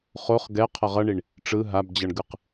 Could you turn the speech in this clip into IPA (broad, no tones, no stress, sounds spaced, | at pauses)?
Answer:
χ o χ ɡ ɛ qʰ ʌ ʁ ʌ ɳ i ɳ | ʈ͡ʂ ɯ ɦ a b d͡ʑ ʌ ɳ ɡ ɯ q